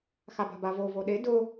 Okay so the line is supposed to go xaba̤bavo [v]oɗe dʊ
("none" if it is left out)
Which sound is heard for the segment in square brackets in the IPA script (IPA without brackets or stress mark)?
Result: v